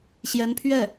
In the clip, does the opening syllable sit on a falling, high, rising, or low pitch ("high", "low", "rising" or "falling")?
rising